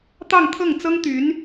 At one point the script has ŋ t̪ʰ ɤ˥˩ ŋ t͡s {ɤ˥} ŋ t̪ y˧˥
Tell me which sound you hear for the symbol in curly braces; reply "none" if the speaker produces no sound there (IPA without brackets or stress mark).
ɤ˥